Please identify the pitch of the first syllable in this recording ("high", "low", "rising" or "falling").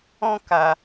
high